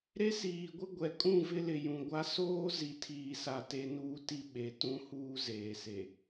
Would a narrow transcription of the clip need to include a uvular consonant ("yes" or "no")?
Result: no